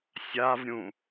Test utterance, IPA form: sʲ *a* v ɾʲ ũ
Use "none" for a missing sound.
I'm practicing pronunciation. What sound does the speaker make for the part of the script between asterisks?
a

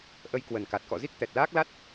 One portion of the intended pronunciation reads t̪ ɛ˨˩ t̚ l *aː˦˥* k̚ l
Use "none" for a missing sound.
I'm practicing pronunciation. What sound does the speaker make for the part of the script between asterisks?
aː˦˥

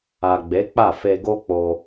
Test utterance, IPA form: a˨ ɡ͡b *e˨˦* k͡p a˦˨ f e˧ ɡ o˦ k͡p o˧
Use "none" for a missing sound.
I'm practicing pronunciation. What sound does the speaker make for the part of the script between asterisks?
e˨˦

